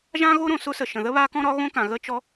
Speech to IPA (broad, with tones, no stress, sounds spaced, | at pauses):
ʒ ã˥ ɣ o˥ ɾ õ˩ s ʊ˥ s ə˩ ʃ ə̃˩ ð ə˥ β a˥ k ɔ̃˥ ɾ ɒ˥ ɣ õ˥ k ã˩ ɣ ə˥ t͡ʃ ɔ˥